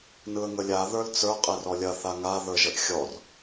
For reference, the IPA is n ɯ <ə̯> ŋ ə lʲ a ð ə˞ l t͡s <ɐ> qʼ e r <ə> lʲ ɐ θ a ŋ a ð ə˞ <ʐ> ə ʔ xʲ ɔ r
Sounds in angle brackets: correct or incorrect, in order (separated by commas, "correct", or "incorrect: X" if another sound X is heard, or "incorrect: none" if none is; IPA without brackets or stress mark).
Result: correct, incorrect: ə˞, incorrect: ɔ, incorrect: ʒ